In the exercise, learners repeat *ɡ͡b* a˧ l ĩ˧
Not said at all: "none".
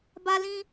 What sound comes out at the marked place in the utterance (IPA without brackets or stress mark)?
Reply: b